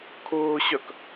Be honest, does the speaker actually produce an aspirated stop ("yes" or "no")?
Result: yes